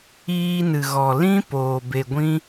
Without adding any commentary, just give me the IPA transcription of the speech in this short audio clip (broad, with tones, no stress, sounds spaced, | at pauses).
iː˧ n ɨ˨ ɣ ɔ˨ l ĩ˦ p oː˨ b e˨ ɡʷ ĩ˦